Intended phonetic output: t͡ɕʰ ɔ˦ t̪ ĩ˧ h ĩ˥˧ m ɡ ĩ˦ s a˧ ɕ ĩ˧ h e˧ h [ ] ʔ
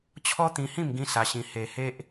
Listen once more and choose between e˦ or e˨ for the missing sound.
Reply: e˦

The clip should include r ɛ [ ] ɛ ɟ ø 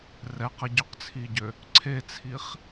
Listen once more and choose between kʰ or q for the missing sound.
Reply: q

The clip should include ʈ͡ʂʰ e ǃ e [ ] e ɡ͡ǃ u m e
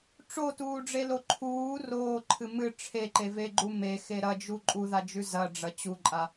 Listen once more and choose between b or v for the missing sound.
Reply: v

